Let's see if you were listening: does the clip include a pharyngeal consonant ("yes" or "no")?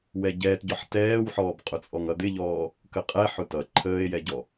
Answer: yes